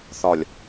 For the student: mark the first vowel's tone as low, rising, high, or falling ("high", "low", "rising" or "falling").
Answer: low